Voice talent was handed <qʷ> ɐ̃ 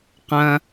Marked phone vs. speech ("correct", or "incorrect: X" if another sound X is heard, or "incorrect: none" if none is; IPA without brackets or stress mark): incorrect: q